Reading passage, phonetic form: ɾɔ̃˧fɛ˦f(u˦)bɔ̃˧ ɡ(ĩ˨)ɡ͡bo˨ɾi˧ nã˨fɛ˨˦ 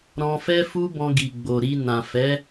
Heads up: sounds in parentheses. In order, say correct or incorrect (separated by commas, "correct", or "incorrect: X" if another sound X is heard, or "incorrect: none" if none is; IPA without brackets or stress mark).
correct, incorrect: i˨